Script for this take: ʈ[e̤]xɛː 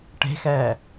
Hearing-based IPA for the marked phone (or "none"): e̤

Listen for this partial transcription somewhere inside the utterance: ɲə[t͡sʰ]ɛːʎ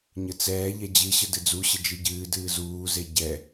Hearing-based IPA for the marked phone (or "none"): t͡s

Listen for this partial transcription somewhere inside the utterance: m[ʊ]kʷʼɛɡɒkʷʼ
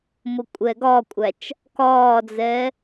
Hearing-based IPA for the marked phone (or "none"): ʊ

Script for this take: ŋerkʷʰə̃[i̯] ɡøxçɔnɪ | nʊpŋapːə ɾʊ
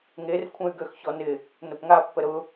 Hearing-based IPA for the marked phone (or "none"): y̯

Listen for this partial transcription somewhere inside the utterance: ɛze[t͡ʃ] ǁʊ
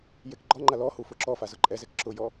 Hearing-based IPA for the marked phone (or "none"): k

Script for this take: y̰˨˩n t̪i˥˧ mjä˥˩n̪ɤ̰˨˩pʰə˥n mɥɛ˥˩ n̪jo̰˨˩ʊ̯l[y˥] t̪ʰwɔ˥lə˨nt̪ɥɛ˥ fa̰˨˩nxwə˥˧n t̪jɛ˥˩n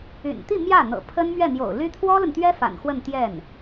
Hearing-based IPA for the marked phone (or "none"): y˥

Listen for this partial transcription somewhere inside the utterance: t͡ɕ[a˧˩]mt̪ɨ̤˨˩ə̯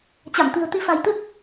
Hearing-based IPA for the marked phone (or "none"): a˧˩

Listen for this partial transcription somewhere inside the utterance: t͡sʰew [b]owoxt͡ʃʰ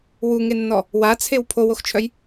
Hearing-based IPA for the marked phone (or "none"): pʰ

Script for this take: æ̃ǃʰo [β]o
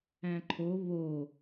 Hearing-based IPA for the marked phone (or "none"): β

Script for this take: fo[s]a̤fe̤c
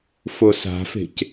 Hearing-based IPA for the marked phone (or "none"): s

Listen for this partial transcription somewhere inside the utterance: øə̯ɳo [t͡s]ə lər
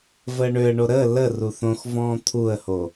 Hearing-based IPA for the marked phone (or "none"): ɾ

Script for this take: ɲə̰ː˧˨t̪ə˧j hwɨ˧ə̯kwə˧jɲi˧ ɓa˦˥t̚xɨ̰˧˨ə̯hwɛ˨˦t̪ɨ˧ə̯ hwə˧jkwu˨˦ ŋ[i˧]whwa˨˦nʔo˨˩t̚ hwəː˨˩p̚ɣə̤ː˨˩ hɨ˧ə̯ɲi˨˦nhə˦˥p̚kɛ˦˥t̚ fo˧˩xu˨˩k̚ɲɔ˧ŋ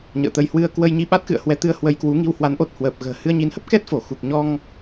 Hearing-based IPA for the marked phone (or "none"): i˧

